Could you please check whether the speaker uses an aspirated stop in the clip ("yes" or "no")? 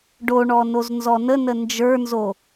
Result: no